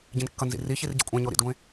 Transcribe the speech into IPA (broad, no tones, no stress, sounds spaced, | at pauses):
ɟ ĩ n kː ʌ n z ḭ r i ç i r ɟ ḛ kʷʼ ɛ̃ ɲ o ɾ ḭ d ɡʷ ẽ